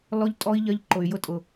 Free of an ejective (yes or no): no